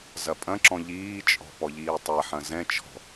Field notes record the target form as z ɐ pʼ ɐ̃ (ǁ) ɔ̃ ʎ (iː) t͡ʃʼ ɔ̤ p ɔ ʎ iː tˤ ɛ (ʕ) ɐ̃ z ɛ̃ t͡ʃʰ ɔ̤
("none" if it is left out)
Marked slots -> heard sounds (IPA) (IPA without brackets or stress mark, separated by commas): ǁ, iː, ħ